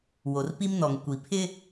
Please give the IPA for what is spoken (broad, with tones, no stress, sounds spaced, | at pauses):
w o˨ r p i˦ m n ɔ˨ ŋ kʷ i˨ pʰ ɪ˦